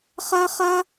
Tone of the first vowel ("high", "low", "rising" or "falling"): high